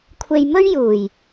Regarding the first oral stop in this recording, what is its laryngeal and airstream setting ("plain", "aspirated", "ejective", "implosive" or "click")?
aspirated